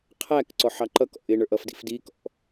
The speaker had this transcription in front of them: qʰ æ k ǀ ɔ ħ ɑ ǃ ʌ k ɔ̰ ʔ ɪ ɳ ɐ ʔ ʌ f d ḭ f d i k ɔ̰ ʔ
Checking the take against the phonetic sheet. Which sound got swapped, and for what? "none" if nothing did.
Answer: ɐ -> ə˞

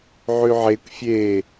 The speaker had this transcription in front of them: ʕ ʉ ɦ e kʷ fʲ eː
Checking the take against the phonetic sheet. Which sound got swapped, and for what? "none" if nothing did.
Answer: ɦ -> ʕ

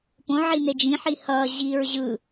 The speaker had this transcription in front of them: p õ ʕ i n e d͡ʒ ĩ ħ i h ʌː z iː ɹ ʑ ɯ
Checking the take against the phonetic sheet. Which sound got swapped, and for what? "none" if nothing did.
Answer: z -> ʑ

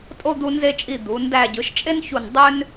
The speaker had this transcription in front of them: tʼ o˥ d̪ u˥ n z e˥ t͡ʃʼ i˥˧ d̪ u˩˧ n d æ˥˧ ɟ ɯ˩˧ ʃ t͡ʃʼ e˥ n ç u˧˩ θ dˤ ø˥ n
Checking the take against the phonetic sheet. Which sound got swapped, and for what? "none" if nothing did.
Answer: θ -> n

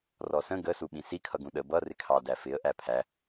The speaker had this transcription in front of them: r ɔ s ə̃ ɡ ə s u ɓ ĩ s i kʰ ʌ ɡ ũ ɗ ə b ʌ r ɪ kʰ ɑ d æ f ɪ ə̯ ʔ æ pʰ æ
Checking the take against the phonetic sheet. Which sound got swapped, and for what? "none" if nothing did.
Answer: none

